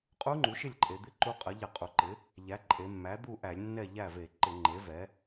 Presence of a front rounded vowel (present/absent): absent